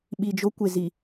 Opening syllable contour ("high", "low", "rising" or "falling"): low